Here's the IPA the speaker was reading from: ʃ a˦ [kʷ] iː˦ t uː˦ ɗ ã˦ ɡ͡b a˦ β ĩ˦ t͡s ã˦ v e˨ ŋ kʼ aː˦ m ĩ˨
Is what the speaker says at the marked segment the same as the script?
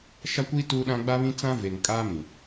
yes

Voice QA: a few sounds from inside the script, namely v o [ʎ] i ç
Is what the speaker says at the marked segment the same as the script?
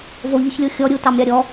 yes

